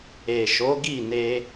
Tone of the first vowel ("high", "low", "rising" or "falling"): low